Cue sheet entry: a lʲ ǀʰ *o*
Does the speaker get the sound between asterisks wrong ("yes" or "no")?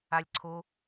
no